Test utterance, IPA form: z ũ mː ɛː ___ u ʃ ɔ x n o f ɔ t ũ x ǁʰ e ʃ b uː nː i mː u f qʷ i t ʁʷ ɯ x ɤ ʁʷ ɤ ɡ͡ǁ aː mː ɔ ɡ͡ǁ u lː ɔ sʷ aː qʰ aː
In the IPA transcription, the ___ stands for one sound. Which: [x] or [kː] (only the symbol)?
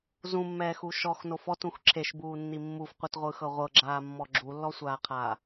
x